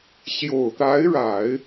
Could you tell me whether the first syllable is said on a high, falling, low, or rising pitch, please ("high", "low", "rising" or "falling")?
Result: low